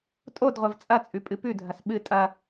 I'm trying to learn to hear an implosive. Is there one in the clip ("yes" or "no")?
yes